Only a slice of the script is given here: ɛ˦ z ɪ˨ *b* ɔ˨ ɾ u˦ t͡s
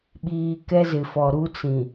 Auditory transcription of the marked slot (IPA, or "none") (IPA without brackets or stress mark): f